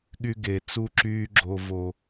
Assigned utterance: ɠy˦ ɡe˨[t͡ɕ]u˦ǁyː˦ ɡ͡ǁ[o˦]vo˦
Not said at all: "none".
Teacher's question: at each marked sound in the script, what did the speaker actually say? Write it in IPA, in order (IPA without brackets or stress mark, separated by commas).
t͡s, o˦